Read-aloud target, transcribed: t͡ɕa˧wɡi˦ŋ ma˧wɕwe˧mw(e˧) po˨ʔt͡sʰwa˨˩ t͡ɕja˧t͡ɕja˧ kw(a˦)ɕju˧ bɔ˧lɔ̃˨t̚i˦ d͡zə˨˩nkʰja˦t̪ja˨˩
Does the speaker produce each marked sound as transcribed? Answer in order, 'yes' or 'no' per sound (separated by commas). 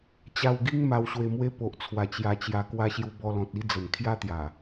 no, no